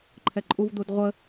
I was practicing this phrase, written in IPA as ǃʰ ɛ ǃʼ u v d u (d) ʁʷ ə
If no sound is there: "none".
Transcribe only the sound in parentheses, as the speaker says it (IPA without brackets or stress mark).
d